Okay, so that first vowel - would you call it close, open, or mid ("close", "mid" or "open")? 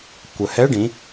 mid